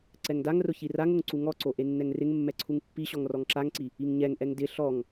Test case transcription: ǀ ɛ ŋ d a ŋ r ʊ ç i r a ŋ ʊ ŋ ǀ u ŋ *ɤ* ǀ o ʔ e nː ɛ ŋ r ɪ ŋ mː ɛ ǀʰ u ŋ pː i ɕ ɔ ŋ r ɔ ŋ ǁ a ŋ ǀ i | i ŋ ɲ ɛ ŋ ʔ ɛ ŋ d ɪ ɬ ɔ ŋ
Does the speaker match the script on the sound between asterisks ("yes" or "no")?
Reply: no